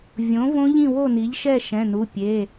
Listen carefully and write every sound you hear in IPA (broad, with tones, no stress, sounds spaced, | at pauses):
vʲ õ˩˥ v õ˦˥ ʎ ĩ˥˨ w o˥˨ n i˩˥ ʎ ʃ ɛ˥˨ ʃ ɛ̃˩˧˩ n u˩˧˩ pʲ e˩˧˩